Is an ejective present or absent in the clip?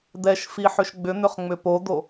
absent